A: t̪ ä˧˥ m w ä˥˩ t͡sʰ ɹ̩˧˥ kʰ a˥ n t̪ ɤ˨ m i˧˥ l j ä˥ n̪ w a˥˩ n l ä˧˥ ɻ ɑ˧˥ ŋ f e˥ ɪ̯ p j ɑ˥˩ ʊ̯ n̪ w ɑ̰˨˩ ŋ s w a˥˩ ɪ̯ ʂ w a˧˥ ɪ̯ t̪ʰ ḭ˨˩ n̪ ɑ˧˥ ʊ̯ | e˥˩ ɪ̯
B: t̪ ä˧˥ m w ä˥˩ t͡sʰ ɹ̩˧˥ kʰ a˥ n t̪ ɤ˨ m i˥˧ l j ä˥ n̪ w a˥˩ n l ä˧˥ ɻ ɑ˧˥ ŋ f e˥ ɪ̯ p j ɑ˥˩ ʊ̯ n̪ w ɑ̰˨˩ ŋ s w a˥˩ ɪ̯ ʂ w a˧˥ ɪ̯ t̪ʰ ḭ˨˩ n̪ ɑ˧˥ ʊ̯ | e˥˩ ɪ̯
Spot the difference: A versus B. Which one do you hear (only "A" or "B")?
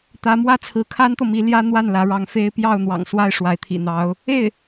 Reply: A